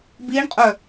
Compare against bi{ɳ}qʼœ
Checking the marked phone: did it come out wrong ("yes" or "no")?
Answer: no